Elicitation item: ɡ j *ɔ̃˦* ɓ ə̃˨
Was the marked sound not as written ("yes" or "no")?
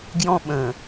no